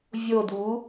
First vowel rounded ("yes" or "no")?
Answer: yes